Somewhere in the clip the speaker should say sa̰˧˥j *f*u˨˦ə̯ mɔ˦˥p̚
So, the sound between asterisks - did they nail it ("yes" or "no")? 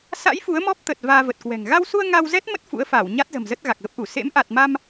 yes